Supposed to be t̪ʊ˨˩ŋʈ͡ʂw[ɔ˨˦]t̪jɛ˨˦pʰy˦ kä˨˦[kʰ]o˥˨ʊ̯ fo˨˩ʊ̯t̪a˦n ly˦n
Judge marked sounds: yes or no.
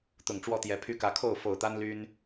no, yes

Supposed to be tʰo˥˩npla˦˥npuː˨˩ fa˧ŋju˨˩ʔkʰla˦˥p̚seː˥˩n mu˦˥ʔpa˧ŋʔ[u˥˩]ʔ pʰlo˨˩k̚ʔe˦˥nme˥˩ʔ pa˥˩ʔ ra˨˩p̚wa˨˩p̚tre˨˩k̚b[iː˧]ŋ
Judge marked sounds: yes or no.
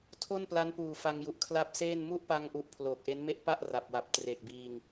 no, yes

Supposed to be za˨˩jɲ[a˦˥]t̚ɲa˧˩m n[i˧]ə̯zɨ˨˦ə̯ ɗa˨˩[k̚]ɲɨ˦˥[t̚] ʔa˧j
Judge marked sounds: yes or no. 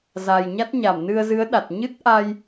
yes, no, no, yes

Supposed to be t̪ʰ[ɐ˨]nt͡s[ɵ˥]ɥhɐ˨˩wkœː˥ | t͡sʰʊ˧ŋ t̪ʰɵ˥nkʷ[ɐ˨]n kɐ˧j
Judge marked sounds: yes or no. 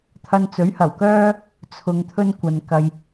no, no, yes

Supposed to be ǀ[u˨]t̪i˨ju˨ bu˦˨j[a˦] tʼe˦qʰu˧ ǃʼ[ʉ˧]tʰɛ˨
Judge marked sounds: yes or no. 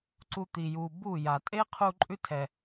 no, no, no

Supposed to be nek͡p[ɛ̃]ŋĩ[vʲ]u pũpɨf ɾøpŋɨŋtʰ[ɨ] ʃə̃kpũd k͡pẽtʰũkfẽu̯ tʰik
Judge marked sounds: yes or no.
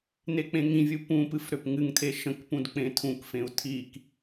no, yes, no

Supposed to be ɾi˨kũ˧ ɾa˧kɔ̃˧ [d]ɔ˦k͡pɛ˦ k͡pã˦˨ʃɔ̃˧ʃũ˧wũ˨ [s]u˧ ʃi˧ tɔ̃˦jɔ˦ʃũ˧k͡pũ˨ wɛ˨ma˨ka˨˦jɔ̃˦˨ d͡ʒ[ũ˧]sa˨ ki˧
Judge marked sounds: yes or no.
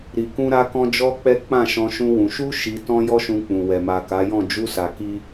no, no, no

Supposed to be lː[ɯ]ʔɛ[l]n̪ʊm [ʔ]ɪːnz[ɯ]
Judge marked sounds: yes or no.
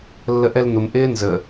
no, yes, yes, no

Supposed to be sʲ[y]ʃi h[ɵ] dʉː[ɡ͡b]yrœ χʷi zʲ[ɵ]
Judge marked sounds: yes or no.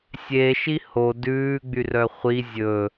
no, no, yes, yes

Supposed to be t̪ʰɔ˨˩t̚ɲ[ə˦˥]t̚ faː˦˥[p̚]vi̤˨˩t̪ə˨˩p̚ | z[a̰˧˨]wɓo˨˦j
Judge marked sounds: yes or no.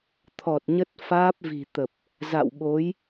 yes, yes, yes

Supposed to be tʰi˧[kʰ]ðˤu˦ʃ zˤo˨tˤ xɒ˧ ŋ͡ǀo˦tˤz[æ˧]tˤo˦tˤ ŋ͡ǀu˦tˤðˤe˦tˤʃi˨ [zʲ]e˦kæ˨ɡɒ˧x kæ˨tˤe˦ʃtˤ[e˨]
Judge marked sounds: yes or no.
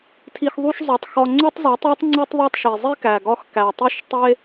no, no, no, no

